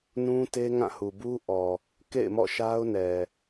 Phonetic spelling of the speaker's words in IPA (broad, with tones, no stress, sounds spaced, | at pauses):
n ũ˦ t e˦ ŋ ã˦˨ h u˨ b u˦ ʔ ɔ˨ | k ḛ˦˨ ɪ̯ m ɔ̰˦˨ ʃ a˦ ʊ̯ n ɛ˨